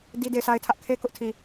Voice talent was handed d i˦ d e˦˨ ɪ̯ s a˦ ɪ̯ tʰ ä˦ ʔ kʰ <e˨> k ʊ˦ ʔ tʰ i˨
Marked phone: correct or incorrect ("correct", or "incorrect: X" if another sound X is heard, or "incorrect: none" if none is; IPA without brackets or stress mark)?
incorrect: e˦